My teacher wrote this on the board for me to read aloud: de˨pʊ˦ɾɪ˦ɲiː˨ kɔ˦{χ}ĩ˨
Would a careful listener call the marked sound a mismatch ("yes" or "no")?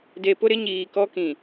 yes